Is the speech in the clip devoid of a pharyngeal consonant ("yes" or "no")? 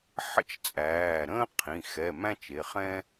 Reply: no